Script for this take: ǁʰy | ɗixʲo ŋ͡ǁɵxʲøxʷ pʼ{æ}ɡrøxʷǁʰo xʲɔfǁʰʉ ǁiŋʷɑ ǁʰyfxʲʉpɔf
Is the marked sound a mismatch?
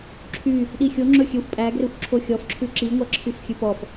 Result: no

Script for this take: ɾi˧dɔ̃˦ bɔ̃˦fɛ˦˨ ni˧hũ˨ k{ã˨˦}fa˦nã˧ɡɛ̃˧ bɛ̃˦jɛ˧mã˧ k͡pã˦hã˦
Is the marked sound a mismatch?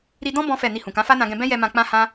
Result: no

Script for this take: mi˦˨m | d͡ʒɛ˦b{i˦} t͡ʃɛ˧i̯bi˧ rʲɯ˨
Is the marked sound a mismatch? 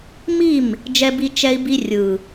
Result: no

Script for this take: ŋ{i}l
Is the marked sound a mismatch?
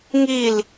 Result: no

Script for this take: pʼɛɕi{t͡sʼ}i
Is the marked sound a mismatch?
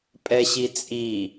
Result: no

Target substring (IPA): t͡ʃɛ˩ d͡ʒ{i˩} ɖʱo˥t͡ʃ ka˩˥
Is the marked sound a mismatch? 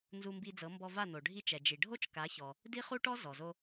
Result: no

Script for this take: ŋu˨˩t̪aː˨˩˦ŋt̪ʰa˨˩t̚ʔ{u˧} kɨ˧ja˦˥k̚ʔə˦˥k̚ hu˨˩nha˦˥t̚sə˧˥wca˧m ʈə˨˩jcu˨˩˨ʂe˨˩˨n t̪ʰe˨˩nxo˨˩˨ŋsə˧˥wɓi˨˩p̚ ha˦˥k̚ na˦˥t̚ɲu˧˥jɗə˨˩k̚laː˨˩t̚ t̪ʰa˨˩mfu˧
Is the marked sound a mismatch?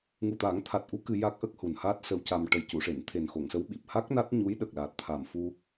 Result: yes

